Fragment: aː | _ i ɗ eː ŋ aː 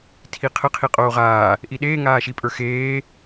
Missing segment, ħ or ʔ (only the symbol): ʔ